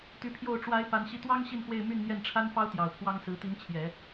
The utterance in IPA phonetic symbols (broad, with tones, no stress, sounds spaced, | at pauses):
t̪ y˧˥ pʰ j o˥˩ ʊ̯ ʈ͡ʂ w a˧˥ ɪ̯ p a˧˥ n ɕ i˥˩ t̪ w ɑ˥ ŋ ɕ i˥˧ n x w e˥˧ ɪ̯ m y˥˧ n n̪ j ɛ˥˩ n ʈ͡ʂʰ a˥ n f ɑ˥ ʊ̯ t̪ j ɑ˨˩ ʊ̯ pʰ w ɑ˥ ŋ s ɹ̩˧˥ t̪ i˧˥ n t͡ɕʰ j ɛ˨˩˦